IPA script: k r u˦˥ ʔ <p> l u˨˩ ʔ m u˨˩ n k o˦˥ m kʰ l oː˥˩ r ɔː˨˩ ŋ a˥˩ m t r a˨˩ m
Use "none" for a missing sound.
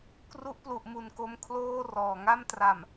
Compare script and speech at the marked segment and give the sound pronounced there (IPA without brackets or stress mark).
p